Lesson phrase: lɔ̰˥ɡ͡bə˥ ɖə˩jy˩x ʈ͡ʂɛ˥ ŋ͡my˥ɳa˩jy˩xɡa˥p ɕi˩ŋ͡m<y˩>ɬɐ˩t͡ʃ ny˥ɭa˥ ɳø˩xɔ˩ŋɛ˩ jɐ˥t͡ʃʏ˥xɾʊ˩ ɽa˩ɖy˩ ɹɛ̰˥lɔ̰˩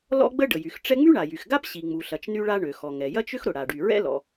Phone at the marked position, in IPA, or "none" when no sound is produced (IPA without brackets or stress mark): u˩